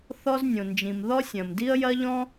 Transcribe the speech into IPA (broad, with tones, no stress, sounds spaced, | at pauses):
θ ɔ˥ z nʲ õ˩ n d͡ʒ ĩ˩ m ð ɔ˥ sʲ ɐ̃˩ m d i˥ ə̯ j ɐ˥ ʎ ɔ̃˥